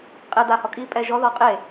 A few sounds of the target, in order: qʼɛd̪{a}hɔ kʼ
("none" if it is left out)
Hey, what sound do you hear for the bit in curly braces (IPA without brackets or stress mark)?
a